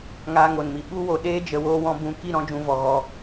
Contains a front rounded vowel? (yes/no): no